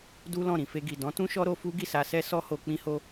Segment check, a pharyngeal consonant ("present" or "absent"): absent